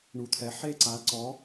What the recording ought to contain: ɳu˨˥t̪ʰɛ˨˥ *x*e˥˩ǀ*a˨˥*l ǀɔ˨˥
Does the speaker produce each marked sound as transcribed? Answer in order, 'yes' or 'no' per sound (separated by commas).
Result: no, yes